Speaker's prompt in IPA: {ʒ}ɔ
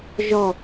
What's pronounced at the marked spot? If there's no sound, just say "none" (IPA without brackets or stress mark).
ʒ